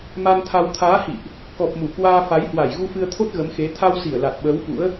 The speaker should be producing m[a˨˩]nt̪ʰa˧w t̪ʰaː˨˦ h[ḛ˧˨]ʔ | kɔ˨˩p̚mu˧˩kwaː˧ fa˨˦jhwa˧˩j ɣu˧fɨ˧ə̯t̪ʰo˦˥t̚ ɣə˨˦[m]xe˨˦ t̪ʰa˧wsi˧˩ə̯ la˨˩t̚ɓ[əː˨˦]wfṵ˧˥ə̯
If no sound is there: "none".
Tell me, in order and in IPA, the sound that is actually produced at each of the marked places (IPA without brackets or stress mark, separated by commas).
a˧, ḭ˧˨, m, əː˨˦